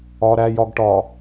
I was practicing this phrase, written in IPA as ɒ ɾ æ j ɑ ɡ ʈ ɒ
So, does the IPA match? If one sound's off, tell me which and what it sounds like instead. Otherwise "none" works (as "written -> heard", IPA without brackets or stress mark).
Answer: ɑ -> ɒ